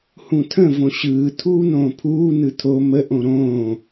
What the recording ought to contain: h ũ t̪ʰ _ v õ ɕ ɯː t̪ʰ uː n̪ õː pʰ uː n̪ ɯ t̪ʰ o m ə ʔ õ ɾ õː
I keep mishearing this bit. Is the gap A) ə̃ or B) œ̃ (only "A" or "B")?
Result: A